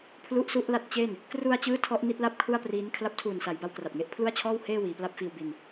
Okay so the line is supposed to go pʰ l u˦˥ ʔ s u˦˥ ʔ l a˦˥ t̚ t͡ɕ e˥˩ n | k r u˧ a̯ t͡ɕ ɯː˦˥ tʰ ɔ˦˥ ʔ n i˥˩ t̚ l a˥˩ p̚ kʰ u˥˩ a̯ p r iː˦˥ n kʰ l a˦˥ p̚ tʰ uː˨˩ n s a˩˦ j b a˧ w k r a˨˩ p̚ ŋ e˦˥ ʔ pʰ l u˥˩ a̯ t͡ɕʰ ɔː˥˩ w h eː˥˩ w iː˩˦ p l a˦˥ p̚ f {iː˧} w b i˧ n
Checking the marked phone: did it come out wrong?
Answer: no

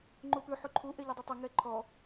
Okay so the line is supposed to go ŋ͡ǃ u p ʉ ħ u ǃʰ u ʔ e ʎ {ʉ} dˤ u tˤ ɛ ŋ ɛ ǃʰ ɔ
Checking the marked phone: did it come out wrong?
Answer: no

